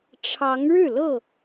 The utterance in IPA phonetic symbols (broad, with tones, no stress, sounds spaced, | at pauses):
ʈ͡ʂʰ ɑ˨˦ ŋ ɻ ɻ̩˥˨ l ɤ˥˨